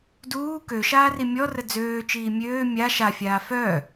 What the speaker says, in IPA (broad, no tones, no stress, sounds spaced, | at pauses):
d uː k ø ʃ aː r i mʲ ɔ r ə d͡z øː t͡ʃ iː mʲ øː mʲ a ʃ a fʲ aː f œː